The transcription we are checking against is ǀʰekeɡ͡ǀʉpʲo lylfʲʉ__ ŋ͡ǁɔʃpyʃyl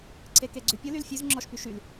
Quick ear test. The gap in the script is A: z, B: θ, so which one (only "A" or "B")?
A